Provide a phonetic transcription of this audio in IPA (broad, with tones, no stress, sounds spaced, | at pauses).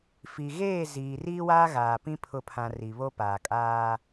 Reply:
f i˨ ɣ eː˦˨ z iː˨ r iː˦ w aː˦ ɣ aː˨ p ĩ˦ pʰ ʊ˨ pʰ ã˨ r i˨ β o˦ p aː˨ kʼ aː˦